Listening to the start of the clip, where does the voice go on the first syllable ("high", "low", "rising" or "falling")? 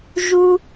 high